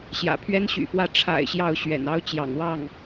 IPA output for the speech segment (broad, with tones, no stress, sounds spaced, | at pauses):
ɕ j ä̰˨˩ pʰ ɥ ɛ˥ n ɕ y̰˨˩ f w ä˥˩ ʈ͡ʂʰ a̰˨˩ ɪ̯ ɕ j ɑ˥˩ ʊ̯ ɕ ɥ ɛ̰˨˩ n ɑ˥ ʊ̯ t͡ɕ j ɑ̰˨˩ ŋ w ɑ˥˩ ŋ